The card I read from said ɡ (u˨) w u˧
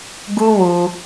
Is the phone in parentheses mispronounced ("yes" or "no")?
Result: yes